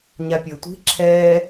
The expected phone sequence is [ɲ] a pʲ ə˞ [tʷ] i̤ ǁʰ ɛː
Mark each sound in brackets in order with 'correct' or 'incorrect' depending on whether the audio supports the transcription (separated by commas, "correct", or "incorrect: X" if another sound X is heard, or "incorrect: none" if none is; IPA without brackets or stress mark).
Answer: correct, correct